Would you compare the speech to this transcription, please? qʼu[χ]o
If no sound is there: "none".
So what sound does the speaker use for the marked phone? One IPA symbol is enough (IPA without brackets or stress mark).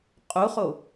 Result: χ